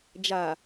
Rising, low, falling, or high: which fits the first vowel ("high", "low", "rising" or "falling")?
low